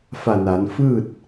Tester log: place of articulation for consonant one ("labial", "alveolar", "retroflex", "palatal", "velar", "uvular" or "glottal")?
labial